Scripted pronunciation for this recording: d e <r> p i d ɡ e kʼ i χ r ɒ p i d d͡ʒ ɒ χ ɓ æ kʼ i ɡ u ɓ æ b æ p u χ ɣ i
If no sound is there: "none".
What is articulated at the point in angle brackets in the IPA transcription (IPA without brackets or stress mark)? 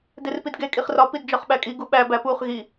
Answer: r